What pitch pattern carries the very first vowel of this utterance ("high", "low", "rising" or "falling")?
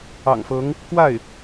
low